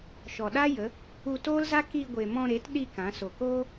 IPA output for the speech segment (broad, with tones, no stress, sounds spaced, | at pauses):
ʃ ɔ˨ ɗ a˦ j ə˨˦ | u˧ t oː˦ l z a˦ k i˧ ɡʷ e˨ m ɔ̃˧ ɾ e˨˦ t ɗ i˧ k ã˨˦ s o˨ k oː˦